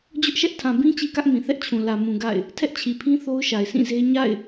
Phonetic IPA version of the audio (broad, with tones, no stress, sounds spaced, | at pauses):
d͡ʑ ʊ˦ ʔ ʃ ɛ˦ ʔ tʰ ã˨ b ĩ˦ t͡ɕ i˦ k ä˦ ʔ m ĩ˨ θ ɛ˦ ʔ t͡ɕʰ ũ˨ l ä˨ m ũ˨ ɡ a̰˦˨ ɪ̯ | tʰ ɛ˦ ʔ t͡ɕʰ i˨ pʰ ĩ˦ θ o˦ ʊ̯ ʃ a˨ ɪ̯ s ĩ˦˨ z e˦ ɲ a̰˦˨ ɪ̯